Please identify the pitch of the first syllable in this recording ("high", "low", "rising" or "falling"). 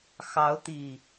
rising